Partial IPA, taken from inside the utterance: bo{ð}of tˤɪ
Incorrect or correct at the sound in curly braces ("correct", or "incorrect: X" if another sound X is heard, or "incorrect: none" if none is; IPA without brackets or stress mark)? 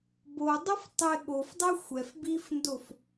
incorrect: dˤ